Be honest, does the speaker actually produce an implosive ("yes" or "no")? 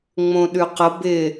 yes